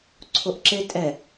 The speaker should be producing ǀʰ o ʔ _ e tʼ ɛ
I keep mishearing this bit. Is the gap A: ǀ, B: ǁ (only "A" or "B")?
B